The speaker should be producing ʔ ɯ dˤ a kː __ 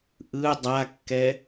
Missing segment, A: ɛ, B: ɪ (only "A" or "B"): A